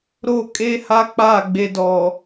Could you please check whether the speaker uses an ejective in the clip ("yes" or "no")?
yes